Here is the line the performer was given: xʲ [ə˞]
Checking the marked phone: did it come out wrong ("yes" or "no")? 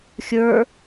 no